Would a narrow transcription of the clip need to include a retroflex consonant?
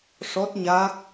yes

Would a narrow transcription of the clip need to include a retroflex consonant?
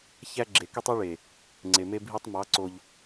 yes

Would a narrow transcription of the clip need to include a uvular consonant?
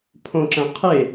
yes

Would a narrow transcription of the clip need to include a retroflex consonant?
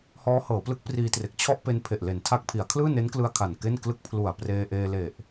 no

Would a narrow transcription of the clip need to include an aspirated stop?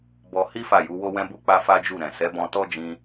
no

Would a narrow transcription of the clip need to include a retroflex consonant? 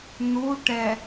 yes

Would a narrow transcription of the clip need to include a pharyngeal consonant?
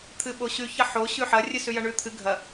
yes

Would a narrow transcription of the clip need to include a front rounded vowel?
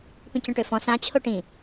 yes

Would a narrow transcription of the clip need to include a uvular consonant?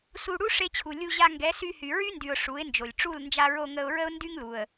no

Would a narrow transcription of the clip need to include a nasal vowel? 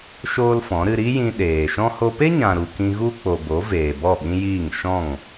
yes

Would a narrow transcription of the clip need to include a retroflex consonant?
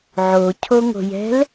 no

